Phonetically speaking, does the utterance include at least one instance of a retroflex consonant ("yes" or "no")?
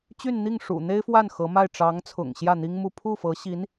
yes